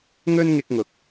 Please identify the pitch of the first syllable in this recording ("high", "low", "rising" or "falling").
high